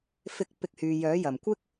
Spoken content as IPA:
fɪ˨˥k̚ pɪ˧k̚hyː˨ jœː˨˥ jɐ˨˩mkʷɪ˥k̚

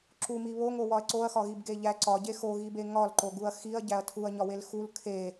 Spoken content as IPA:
ǁumi βoŋowɒɐ̯ ǀoɐ̯xɒɣibɡe ʎæ ǀɒɟe xoɣibe ŋɒlǃoɡuɐ̯ xiɐ̯ɟæɐ̯ tʰuɐ̯ɲɒwel xul kʰe

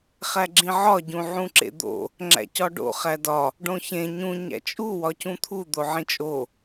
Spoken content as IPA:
χæɡ͡ǁĩʕɒ ɟũʕũǁḛd̪o̰ | ŋ͡ǁæ̰cɒɖo̰ χædɒ | ɖõçẽ ɲũ ɲæ̰t͡ʃʼu wɒcũt̪ʰu d̪oʕĩt͡ʃʼo

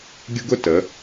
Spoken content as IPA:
ɡʲʊ˥ɡʊ˥tə˩˧

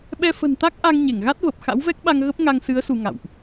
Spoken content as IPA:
ɓɛ˧fə̤˨˩nt̪a˦˥k̚ʔa˧ŋ ɲe˧˩ŋɣa˦˥t̚və˨˩p̚ xa̰˧˥wvɛ˦˥k̚ɓa˧ŋ ɣə˦˥p̚ŋa˧ŋsɨ˨˦ə̯ su˧ŋa̰˧˨wʔ

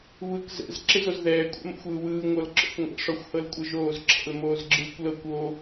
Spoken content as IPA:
βɯk zɛ̰z ǁezozðɛː kʷʼɛ̰mo̰xʷɯːwɯː ŋʷɤlǁɔ̰kʷŋʷɛ̰ ʂɔxʷhɤlkʷʼɤʒoːz ǁʰɛ̰lmoːzɡ͡ǁɯːkʷlɤkʷ o

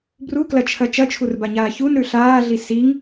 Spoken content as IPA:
bruklɐt͡ʃʰɐ t͡ʃɐt͡ʃʰurbaɲaː çunɾʉ ɬaːɮi siŋ

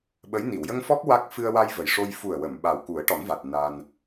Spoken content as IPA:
ɓə˧˥j ni˨˩˨wjə˧ŋfɔ˦˥k̚ wa˦˥k̚fɨ˧ə̯ wa˧j və˨˩jʂo˧j fu˨˩ə̯wə˨˩˨m ɓa˨˩wku˨˩˦ə̯ʈɔ˨˩˦nva˨˩t̚ na˧n

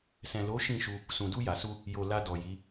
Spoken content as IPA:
sɛ̃˨lo˨˦ ʃĩ˦˨ʃu˧ | sũ˨du˧ja˨su˧ | jo˨ la˧dɔ˨ji˨˦

